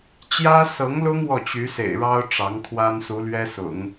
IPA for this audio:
t͡ɕjä˥sɤ˧˥ŋlʊ˥ŋ wɔ˥˩t͡ɕy˧˥sḛ˨˩ɪ̯ɻɑ˥ʊ̯ ʈ͡ʂɑ˧˥ŋkʰwa˥n su˧˥lɥɛ˥sʊ̰˨˩˦ŋ

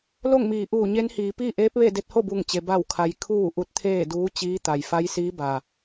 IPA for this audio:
lo˥˨ŋmiː˩ʔuː˧˩ɲe˧˥n hiː˩˧piː˥˨ ʔeː˧˥p̚ʋe˥˨de˧t̚ ho˥˨bu˧˩ŋt͡ɕe˩ ba˧˩wkʰa˩j kʰuː˧˩ ʔu˧t̚t̪ʰeː˥˨duː˧˥t͡ɕiː˧˥ t̪a˩jfa˧˥jsiː˧˥ba˩

